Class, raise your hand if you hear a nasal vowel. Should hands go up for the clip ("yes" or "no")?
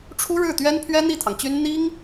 no